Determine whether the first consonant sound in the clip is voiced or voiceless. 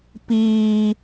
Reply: voiceless